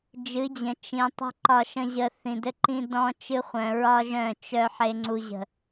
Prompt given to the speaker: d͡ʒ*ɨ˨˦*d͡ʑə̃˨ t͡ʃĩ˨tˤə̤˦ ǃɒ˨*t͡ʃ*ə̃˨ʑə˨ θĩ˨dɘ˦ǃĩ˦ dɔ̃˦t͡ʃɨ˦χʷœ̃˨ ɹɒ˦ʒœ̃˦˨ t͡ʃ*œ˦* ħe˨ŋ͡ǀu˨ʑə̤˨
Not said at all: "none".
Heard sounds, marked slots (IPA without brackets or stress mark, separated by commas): ɨ˨˦, ʃ, œ˦